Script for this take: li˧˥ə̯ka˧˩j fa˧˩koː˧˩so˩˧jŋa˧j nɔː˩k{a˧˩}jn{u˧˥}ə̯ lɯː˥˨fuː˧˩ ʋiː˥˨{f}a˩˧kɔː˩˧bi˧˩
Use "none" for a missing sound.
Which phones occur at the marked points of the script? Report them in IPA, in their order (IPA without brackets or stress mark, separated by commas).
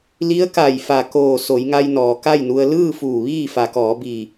a˥˨, u˧, f